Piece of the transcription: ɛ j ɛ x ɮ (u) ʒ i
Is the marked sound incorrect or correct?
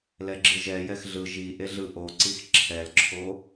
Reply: incorrect